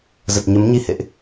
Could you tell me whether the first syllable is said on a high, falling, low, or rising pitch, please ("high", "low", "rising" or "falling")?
low